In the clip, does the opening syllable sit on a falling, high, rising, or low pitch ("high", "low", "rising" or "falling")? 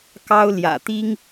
high